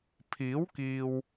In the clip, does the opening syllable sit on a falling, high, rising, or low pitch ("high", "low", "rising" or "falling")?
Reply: rising